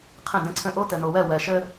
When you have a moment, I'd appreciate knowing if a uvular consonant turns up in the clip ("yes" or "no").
yes